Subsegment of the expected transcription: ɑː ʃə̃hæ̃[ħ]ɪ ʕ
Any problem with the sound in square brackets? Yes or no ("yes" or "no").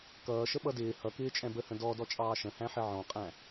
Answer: no